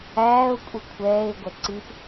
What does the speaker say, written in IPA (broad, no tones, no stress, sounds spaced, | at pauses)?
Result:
æː ʊ̯ kʷʼ i kʷʰ ɛː ɪ̯ ɡʷ ɛ ǀ i p